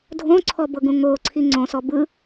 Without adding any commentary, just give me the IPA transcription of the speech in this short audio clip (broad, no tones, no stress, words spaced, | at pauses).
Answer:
dʱõǀʰɔbɤɡũ ŋoǀʰi ŋ͡ǀõsɔ bɯ